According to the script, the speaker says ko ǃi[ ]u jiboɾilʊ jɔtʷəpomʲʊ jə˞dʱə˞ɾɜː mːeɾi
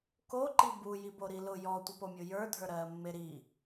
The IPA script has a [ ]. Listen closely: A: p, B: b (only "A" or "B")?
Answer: B